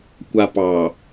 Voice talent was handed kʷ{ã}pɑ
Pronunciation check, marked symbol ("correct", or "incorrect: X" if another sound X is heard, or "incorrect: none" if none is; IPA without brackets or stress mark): incorrect: a